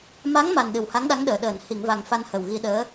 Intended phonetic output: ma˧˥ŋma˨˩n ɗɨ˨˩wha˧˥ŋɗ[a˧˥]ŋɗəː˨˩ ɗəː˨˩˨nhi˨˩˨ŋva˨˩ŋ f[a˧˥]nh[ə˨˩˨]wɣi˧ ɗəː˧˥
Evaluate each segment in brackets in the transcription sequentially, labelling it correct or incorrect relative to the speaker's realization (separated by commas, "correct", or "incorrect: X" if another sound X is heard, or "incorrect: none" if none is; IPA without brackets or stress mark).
correct, incorrect: a˧, incorrect: ə˨˩